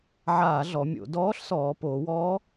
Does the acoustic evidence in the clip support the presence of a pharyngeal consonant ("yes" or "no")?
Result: yes